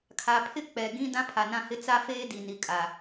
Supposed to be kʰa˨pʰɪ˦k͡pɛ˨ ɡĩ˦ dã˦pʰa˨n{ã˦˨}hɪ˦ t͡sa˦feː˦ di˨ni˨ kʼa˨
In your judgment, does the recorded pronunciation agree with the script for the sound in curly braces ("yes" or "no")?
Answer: yes